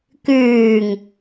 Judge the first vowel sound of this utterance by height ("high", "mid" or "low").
high